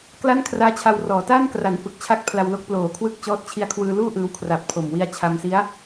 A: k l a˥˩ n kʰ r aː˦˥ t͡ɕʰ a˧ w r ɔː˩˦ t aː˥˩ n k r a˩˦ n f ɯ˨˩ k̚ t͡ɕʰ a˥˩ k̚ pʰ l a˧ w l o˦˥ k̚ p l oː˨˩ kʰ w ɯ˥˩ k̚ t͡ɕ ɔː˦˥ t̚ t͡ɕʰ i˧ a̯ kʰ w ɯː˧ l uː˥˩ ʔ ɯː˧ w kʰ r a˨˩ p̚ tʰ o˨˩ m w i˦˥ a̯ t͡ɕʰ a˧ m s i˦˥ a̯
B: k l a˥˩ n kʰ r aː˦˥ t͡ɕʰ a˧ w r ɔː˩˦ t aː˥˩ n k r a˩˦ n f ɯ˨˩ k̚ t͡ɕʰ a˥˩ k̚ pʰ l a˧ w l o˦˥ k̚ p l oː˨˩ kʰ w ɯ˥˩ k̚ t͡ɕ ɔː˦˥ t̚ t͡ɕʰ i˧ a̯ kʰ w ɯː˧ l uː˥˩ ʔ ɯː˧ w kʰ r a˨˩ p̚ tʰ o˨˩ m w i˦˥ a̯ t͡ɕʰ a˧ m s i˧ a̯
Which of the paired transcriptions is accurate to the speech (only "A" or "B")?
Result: A